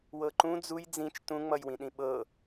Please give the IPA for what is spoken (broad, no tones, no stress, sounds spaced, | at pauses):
w ɤ ǃ ũ d͡z u j d͡z ĩ t͡ʃ t ũ ŋ͡m ʌ j w ĩ ɗ ĩ ɓ ɤ